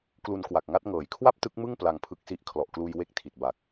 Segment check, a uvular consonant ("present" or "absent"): absent